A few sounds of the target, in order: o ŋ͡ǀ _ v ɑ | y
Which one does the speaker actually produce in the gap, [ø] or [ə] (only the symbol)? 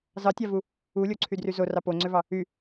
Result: ø